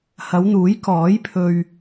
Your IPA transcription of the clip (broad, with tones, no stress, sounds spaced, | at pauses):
h ɐ˨˧ w n̪ uː˨˥ j k ɔː˨˥ j pʰ ɵ˧ ɥ